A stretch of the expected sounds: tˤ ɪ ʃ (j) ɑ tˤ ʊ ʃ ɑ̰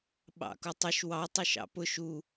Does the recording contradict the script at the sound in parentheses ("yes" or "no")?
yes